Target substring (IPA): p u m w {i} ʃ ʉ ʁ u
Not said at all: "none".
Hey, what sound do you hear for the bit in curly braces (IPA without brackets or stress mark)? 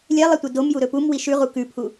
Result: i